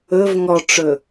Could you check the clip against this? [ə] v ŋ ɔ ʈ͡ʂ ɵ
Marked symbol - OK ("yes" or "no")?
no